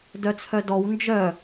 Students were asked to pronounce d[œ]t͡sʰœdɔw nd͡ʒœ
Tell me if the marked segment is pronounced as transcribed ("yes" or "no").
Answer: yes